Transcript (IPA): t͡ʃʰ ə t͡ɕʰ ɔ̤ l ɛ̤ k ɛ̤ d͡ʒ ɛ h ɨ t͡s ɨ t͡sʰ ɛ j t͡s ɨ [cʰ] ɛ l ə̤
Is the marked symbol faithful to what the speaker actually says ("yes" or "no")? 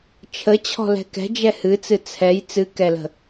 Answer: no